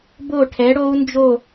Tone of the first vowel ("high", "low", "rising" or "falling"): falling